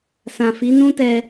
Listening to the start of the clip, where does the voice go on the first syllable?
low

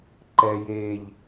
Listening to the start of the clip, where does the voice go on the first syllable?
low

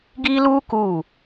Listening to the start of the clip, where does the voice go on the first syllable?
high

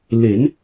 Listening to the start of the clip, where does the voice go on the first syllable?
rising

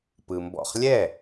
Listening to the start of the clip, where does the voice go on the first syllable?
low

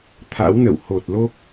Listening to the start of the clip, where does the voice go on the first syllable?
rising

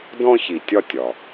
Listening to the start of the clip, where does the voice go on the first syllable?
high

